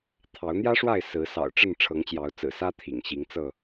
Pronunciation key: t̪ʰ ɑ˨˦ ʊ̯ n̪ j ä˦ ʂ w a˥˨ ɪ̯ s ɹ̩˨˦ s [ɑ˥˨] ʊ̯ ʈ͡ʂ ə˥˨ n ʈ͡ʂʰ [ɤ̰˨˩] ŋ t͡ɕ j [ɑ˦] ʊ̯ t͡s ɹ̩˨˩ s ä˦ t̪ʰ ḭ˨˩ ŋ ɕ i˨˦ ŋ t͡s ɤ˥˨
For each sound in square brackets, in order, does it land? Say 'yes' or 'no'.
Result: no, no, no

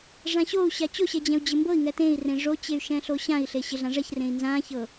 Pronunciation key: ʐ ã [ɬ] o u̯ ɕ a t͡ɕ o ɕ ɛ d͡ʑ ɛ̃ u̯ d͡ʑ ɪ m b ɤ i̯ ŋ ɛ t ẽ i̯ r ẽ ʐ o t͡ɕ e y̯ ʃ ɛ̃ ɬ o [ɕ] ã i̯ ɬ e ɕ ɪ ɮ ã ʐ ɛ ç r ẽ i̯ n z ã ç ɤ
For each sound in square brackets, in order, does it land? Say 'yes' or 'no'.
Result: no, yes

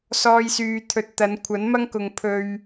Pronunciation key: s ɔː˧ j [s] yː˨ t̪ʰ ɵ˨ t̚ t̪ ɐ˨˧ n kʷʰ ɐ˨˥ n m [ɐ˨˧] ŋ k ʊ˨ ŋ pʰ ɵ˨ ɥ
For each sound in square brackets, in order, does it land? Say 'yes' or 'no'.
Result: yes, no

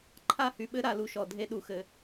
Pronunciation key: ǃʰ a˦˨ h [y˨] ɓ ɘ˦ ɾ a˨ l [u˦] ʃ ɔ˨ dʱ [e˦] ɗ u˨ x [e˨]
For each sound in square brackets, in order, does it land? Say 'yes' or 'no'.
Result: yes, no, yes, no

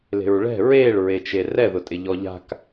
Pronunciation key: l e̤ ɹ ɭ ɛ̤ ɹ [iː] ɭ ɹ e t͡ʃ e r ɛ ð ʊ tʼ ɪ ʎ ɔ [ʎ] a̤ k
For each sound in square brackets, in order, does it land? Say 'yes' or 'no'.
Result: no, yes

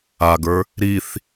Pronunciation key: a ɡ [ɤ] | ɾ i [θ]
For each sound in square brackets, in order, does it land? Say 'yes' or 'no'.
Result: no, yes

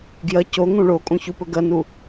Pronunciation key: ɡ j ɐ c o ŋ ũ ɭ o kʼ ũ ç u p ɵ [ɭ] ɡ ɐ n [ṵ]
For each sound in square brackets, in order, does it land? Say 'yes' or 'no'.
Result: no, no

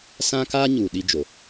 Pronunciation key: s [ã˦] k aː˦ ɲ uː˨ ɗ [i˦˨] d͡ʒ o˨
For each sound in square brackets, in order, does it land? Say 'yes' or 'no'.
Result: yes, no

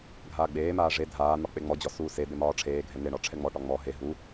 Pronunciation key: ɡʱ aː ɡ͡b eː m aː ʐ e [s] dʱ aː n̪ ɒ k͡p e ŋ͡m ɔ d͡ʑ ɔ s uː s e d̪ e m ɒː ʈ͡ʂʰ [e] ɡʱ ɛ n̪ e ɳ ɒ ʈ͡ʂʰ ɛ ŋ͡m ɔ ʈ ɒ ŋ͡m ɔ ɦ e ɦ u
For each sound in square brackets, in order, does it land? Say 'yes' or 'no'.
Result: no, no

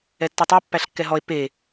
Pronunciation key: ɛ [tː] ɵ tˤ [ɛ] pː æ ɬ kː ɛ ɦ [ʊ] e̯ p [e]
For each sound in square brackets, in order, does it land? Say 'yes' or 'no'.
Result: yes, yes, no, yes

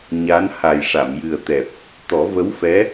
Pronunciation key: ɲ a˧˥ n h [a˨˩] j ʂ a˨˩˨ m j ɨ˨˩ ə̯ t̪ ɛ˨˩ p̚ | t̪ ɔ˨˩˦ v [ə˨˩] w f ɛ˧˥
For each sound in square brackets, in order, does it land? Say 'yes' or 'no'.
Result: yes, no

